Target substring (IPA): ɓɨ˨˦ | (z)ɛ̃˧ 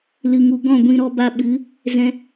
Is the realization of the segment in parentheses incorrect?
no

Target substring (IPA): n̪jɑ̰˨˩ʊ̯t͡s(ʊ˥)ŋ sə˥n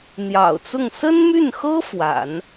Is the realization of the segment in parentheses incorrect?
yes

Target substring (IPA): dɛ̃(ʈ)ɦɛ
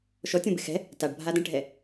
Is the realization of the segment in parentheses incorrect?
no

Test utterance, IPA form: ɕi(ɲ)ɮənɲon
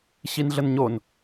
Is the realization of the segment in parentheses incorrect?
yes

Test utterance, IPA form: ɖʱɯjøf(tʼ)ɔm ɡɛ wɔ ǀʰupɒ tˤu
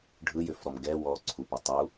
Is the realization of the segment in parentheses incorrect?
yes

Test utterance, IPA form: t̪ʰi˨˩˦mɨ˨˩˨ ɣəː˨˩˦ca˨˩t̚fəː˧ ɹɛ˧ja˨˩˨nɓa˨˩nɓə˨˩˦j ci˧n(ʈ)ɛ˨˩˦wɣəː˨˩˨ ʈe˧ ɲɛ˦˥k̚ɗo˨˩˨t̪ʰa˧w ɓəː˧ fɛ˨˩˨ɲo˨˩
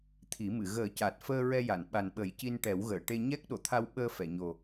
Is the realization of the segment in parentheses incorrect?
no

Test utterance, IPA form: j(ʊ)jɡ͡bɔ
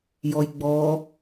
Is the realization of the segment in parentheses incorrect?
yes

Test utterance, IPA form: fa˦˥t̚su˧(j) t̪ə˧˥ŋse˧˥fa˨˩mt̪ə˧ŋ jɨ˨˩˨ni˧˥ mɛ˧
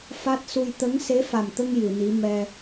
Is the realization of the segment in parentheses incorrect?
no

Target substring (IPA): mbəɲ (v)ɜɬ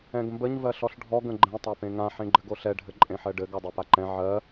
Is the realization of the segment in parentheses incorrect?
no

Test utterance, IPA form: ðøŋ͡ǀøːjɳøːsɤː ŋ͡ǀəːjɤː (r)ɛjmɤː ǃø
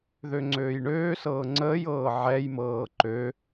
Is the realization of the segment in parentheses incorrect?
yes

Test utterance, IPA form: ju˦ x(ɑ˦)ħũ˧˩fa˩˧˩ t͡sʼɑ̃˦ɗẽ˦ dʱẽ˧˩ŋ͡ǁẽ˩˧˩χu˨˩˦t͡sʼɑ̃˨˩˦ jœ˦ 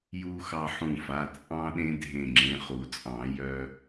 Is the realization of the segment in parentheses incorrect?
no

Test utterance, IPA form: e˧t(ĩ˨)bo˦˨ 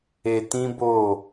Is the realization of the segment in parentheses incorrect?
yes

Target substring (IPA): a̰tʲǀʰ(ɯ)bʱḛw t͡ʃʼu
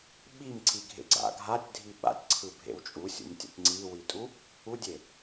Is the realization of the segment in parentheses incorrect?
no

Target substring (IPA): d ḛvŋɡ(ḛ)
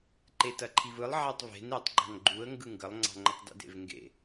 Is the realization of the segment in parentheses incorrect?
no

